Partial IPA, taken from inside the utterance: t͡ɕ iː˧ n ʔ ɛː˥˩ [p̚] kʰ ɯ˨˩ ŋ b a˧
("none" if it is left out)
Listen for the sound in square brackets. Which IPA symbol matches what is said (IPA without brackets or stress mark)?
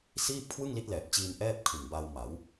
p̚